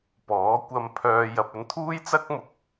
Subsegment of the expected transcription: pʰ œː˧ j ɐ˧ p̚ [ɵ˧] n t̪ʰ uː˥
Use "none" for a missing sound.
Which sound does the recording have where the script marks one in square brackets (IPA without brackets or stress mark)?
ɵ˧